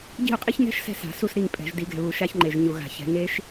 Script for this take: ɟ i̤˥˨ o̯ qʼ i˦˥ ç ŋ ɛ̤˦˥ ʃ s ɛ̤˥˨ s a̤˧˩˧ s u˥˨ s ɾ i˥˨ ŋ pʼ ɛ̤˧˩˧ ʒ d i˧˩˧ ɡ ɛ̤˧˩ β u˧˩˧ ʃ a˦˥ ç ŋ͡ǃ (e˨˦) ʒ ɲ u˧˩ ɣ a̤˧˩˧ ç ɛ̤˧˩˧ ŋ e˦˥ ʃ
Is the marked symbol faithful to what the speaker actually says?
no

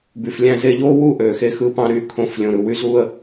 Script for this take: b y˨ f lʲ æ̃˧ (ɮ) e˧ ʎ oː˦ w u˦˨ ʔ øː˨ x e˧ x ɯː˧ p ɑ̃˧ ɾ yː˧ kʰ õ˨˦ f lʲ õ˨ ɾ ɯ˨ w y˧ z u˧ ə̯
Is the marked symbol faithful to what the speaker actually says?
no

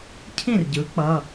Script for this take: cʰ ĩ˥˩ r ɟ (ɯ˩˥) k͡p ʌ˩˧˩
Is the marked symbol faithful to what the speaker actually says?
yes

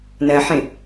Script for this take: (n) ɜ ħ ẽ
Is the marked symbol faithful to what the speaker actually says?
yes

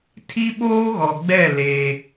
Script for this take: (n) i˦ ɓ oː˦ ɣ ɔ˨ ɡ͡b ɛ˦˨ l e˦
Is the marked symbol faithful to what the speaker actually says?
no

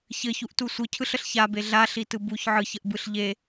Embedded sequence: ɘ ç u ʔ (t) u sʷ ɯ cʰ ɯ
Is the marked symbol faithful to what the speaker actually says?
yes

